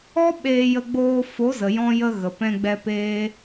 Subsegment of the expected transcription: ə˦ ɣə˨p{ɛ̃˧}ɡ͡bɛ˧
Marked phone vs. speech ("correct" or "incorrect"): correct